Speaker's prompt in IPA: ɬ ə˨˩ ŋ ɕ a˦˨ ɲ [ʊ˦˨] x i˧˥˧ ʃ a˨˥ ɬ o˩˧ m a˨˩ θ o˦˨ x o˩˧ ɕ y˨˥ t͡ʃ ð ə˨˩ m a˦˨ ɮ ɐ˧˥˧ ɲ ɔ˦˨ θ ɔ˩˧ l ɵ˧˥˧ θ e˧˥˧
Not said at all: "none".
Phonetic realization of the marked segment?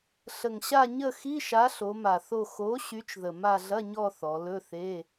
ə˦˨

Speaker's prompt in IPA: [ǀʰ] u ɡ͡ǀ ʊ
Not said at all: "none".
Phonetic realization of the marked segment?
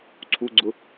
ǀʰ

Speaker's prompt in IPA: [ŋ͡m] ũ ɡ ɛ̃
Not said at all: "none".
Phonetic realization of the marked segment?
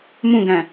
m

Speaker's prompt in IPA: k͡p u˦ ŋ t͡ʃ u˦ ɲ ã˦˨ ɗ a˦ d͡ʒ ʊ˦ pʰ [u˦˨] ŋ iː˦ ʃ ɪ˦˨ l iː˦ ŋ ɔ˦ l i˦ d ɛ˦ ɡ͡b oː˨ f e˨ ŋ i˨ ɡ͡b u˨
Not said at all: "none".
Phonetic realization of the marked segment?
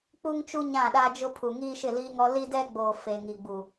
u˨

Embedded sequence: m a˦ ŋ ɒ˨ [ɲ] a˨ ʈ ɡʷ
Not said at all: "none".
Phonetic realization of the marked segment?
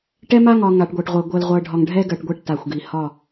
ŋ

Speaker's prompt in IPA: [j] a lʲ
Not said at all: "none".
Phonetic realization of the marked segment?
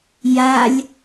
j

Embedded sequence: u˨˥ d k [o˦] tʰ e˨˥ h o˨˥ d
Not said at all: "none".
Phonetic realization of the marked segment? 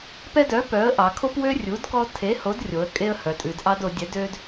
ɔ˦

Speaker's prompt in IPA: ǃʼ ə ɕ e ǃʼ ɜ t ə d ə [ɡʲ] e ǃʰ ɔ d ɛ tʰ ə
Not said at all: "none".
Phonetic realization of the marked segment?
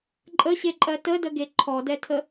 ɡ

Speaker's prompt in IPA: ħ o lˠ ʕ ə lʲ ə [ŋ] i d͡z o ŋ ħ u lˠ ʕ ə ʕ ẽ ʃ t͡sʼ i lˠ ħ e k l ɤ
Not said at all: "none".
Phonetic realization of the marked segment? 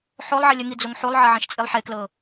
ŋ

